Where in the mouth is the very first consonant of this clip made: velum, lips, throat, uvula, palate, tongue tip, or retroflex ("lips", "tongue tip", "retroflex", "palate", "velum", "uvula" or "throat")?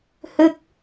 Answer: throat